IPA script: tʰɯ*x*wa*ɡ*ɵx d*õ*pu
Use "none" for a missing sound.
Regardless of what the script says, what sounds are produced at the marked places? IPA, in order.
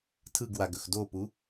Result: ɡ, ɡ, o

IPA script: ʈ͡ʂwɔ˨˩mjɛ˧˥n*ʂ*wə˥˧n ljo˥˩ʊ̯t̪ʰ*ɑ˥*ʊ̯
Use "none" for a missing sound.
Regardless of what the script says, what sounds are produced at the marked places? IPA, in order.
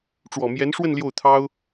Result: ʂ, ɑ˥

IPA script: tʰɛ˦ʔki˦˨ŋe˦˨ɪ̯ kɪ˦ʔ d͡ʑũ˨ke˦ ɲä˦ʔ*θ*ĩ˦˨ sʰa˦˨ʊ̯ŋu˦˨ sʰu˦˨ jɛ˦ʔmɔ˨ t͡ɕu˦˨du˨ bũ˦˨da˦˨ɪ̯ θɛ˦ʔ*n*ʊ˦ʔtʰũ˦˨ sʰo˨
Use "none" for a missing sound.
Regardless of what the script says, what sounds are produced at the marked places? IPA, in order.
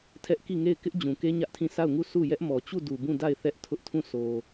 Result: tʰ, tʰ

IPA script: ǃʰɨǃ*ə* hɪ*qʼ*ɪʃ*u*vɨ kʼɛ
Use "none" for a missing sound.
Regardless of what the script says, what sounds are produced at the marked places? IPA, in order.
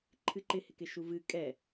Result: ɪ, k, u

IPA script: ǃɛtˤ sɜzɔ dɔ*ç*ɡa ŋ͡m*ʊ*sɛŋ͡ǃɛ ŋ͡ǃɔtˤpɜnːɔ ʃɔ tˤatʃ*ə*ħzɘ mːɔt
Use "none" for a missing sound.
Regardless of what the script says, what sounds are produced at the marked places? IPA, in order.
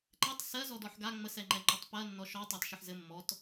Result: ħ, ə, ə

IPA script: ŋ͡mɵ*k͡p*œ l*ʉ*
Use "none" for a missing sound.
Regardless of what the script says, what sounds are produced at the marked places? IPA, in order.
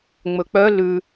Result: k͡p, ʉ

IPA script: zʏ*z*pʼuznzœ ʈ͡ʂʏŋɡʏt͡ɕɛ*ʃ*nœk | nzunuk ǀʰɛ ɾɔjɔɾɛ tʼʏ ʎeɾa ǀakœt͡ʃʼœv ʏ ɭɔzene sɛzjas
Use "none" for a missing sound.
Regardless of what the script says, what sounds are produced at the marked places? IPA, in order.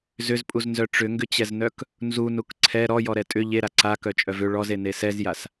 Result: z, z

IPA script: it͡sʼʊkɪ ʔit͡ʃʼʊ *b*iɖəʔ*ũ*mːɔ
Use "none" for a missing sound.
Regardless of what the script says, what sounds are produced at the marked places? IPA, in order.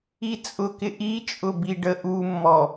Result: b, u

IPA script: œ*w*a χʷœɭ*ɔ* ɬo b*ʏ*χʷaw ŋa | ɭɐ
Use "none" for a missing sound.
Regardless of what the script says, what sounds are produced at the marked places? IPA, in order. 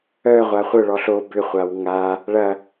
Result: ʁʷ, ɔ, ʏ

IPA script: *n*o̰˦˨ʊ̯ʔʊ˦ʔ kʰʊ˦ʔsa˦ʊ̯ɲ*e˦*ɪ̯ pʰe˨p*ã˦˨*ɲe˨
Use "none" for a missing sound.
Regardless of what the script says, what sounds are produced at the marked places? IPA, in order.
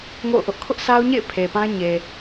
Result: ŋ, ḛ˦˨, ã˦

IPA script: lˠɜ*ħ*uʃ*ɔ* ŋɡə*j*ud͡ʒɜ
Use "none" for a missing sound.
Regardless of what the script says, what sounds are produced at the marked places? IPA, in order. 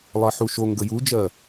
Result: ħ, o, j

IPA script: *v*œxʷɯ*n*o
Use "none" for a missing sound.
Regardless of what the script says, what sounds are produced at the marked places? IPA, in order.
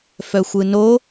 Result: f, n

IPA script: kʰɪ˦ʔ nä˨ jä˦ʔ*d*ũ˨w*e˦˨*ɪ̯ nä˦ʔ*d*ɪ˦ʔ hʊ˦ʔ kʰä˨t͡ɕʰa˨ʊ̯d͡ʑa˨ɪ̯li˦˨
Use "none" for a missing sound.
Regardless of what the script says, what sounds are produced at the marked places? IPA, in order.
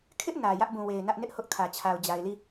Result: b, e˨, n

